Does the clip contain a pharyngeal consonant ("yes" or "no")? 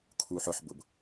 yes